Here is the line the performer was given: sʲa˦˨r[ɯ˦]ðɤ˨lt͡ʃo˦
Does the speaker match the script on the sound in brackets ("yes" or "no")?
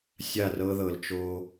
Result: no